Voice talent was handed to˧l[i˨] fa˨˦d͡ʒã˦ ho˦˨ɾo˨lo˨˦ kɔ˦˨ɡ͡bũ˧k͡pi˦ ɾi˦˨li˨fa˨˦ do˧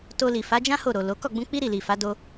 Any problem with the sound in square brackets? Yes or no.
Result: no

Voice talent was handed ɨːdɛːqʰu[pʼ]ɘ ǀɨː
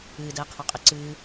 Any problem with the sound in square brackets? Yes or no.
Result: yes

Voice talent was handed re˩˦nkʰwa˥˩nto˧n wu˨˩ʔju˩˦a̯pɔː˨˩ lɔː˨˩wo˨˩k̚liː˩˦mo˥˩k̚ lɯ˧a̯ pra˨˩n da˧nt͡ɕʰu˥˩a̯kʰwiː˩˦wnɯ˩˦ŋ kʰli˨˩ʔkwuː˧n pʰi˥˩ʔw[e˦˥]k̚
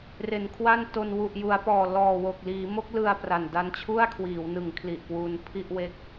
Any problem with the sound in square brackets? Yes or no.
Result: no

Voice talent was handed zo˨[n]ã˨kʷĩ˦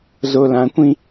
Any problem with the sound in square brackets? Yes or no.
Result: yes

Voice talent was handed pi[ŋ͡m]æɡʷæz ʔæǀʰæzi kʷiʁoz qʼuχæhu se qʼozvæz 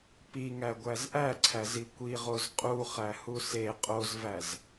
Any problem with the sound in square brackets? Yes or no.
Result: yes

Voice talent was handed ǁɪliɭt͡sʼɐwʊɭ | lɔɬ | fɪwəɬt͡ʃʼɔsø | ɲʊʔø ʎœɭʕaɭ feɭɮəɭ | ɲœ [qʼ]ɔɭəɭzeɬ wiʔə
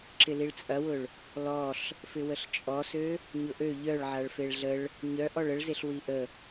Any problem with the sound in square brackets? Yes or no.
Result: yes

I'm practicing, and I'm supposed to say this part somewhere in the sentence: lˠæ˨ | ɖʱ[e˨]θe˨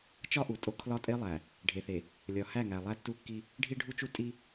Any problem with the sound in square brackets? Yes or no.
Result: no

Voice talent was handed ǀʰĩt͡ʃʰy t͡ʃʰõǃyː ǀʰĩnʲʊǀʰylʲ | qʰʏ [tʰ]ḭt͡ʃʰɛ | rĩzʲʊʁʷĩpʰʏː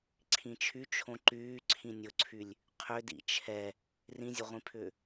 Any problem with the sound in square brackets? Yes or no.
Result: yes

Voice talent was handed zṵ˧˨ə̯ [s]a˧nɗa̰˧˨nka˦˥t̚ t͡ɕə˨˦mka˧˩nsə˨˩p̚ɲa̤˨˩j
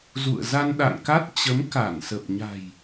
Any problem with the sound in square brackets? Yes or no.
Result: yes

